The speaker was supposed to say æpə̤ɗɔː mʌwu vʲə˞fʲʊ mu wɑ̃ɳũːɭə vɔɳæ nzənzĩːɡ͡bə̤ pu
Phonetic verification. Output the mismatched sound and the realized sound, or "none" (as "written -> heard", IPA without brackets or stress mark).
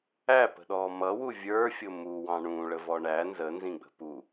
ĩː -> ĩ